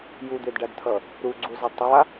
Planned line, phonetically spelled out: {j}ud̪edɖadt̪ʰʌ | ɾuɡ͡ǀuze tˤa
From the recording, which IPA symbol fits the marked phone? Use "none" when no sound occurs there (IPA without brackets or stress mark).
j